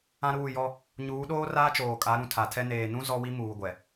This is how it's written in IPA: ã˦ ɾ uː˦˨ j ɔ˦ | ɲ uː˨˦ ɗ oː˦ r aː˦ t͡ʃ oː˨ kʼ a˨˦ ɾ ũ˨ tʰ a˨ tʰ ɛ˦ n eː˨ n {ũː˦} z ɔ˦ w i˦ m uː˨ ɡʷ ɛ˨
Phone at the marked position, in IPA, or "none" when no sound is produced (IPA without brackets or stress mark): ũ˦